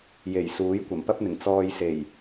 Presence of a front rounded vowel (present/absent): absent